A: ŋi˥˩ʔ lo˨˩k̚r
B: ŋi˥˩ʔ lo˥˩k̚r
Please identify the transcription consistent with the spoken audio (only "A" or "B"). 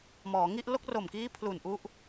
B